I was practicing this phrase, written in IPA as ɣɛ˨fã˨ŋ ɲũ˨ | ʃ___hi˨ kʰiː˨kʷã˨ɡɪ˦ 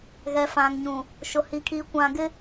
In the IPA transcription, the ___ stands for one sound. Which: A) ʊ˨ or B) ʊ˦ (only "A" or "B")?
A